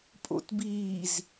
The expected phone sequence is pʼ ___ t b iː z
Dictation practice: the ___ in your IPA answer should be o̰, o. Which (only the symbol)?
o̰